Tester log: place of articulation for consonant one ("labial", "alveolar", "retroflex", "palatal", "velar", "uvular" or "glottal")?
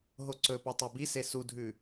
glottal